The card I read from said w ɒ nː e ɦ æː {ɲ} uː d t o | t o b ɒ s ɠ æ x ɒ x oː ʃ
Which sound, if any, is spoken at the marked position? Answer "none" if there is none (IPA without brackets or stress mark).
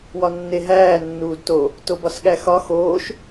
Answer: nː